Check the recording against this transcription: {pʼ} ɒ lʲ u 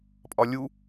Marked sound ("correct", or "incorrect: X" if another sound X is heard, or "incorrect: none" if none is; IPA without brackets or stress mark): correct